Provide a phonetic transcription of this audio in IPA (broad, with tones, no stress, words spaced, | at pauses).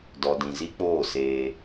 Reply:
dɔ˨dĩ˨zi˦k͡poː˦˨ seː˦